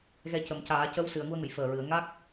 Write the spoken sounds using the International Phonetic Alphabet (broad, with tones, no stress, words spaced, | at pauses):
ɣɛ˧ cə˨˩˨mcaː˨˩˦ cə˧˥wsɨ˨˩˨ə̯ŋu˧ə̯ŋə˨˩˨j fəː˨˩ɹɨ˨˩˨ə̯ ŋa˦˥k̚